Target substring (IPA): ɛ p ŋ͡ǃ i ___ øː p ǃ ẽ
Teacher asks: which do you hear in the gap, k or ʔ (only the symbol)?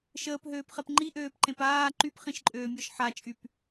ʔ